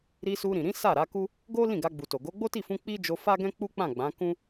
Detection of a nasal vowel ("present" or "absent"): present